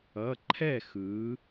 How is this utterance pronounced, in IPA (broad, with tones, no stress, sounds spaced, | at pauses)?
ʌ˩˧˩ ǃʰ ɛ˥˩ x ɯ˩˧